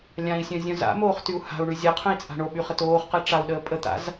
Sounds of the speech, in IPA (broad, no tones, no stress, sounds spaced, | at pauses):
lʲ ã i̯ sʲ œ̃ zʲ œ̃ z a̰ m oː χ t y u̯ h a̤ u̯ ɳ y zʲ a qʰ œ̃ i̯ t͡sʼ a̤ ɳ o ɓ y χ ə t oː χ q ɛ ʈ͡ʂ a u̯ ɗ əː pʼ ə t̪ a̰ z